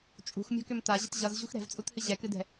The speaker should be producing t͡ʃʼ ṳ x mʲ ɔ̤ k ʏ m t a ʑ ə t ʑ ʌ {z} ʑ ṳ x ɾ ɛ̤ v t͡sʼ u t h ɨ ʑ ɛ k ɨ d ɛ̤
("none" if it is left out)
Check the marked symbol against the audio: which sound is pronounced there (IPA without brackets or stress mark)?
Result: z